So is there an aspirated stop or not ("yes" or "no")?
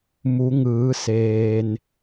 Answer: no